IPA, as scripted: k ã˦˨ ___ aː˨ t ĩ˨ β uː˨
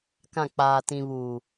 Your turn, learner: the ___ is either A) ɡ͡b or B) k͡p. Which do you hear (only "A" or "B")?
B